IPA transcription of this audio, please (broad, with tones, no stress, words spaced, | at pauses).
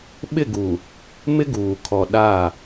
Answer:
ɓɪ˦˨ɡuː˨ | mɪ˦ɡuː˨ kʰɔ˨ ɗaː˦˨